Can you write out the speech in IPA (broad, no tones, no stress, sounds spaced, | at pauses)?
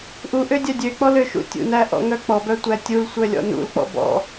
ʔ u ʔ ø dʲ œ dʲ ø k͡p ɔ l ø ʃ ṵ tʲ ṵ n æ ʔ ɔ̰ ŋ œ k͡p ɔ b œ tʷ æ tʲ u l sʷ œ lʲ ɔ̰ n ṵ l k͡p ɔ̰ b ɔ̰